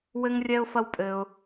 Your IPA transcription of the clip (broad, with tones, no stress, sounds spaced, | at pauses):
w ɘ˥ ŋ rʲ ɛ˥ ʊ̯ f ɐ˥ w pʼ ɘ˥ ʊ̯